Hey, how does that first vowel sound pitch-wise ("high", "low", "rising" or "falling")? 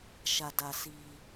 low